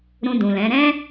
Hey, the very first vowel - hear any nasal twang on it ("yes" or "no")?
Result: yes